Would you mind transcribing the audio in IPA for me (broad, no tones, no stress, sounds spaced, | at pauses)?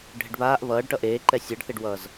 ɖʱ ɪ ɖ β aː ʔ β ʌː ɖ ʈ ʌ ʔ eː ǃ ɛ sʲ əː ɖ θ e ɖ w ʌː z